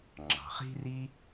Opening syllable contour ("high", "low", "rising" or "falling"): low